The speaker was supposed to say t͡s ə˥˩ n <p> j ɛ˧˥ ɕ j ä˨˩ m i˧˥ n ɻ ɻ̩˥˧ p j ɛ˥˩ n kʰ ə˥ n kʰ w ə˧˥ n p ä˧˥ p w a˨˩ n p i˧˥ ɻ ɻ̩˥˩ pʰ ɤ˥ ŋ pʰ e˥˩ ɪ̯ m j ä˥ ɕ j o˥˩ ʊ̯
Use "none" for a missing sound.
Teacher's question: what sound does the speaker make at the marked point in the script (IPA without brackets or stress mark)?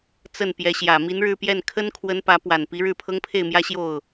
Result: p